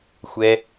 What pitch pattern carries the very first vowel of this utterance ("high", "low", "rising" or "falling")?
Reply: low